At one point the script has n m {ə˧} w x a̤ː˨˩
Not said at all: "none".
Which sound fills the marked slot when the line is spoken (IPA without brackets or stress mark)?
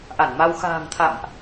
a˧